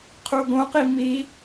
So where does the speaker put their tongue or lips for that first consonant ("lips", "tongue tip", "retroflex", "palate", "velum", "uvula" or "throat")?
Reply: uvula